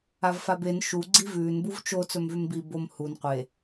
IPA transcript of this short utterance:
avfaben ʃu ɡ͡ǀivʉːn buvt͡ʃo t͡sɵmvʉmbi bom hun qʷe

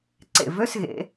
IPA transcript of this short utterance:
ǀḛ˨˩vø˧˥˧sɣḛ˨˩˦

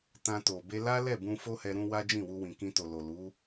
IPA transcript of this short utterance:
tã˧to˨ be˧la˦lɛ˦˨bũ˧ fo˦hɛ˧ɾũ˧ wa˦d͡ʒĩ˦˨wu˧wĩ˨ kĩ˧to˨lo˨lu˨˦

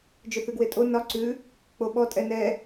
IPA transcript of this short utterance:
d͡ʒʏθʉɡwetʼo nɒ ǀʉ | k͡poɓɔ tʼɛnɛ

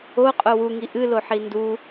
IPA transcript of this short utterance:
oqʼo wuŋi ʔɨloħi ndu

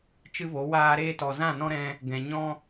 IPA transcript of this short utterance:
t͡ʃɨ˦vo˨˦waː˦ ɾeː˧tɔ˨ zã˦˨nɔ̃˦ ɾɛ̃˧ | ɡɛ̃˨ɲɔ̃˦

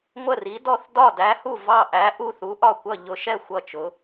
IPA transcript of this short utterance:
ŋʷə˥˨ri˧˥dɔ˥˨θ dɒ˥˨dæ˧˥hu˥˨ vɑ˥˨ʔæ˧˥ ʔu˥˨θu˧˥ʔɒ˥˨kʷʌ˥˨ ʎʊ˧˥ʃɛ˥˨ xʷʌ˥˨t͡ʃʊ˧˥

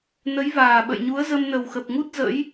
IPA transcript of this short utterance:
nə˨˦jvaː˨˩ɓə̰˧˨jɲu˨˦ə̯ zə˧mnə˨˩wxə˨˩p̚ŋu˦˥t̚ zə̰˧˥j

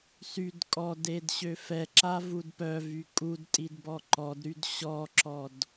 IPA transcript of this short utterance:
syd kʼɔded ɕøfɛǁa vudpœvy kʼudtʼid bɔǃɔdɾyd ɕɔǁɔd

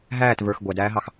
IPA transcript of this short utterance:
ɦæːt və˞x ɡʷædæːɦɑx

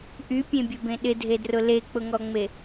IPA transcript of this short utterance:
ʔypʲẽbʲʊbẽ ɗɪdʱedrʊ lek͡pʊŋɔŋ͡me

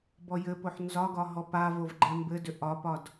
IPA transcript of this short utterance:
bɔjɘpoħ nzɒɡɒ ɦɔpavov ɡ͡ǃɛmbɘdʏ ʔɒpɒd

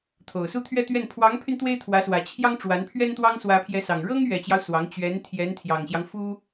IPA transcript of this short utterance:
t̪ʰo˨˩ʊ̯su˥˧t̪ʰɥɛ˥˧t̪ɥɛ˥˩n pʰwɑ˧˥ŋpʰy˧n t̪we˥ɪ̯t̪ʰwä˧˥swä˨˩t͡ɕʰjɑ˥ŋ ʈ͡ʂwa˧˥npʰɥɛ˥nt̪wɑ˥ŋ swä˧˥pʰjɛ˧˥sɑ˨˩ŋ ɻɤ˥ŋ ɥɛ˨˩t͡ɕjɑ˦ʊ̯ swɑ˧˥ŋ t͡ɕɥɛ˧˥n t̪ʰjɛ˧˥nt̪ʰjɑ˨˩ŋɕjɑ˦ŋ fu˥

